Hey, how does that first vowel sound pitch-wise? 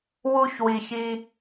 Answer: high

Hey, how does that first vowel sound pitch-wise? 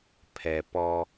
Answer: low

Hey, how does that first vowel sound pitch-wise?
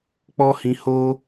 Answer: high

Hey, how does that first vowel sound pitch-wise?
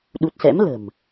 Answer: low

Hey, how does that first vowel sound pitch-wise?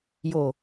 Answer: low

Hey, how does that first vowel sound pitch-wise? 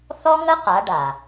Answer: high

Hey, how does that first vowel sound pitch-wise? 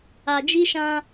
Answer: low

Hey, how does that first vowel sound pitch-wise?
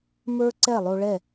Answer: high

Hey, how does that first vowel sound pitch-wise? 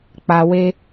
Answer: low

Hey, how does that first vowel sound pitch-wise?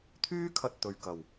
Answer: high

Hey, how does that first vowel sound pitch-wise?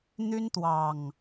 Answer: high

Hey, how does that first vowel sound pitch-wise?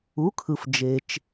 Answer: rising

